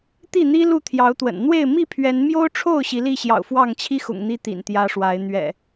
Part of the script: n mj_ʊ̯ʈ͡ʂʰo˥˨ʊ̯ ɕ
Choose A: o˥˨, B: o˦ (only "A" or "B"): B